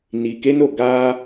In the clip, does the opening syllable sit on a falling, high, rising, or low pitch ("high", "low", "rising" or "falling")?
low